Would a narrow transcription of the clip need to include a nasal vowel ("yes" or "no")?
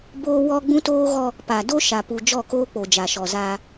yes